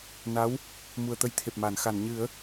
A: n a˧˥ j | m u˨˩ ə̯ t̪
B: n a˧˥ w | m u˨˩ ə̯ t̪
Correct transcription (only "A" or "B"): B